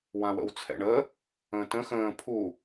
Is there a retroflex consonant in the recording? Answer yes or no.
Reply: yes